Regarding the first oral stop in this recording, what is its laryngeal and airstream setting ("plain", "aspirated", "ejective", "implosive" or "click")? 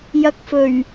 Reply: plain